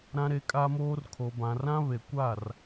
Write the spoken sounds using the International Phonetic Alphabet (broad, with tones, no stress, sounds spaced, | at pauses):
ɾ ã˦ ɾ e˦ kʼ a˦ m oː˦ r kʰ o˨ b ã˨ r ã˦ β e˨ kʷ a˦˨ r